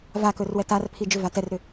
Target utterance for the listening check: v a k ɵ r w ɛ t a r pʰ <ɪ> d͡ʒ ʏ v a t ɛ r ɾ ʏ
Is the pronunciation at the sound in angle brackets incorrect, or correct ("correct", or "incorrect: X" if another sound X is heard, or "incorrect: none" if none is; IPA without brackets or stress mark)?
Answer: incorrect: i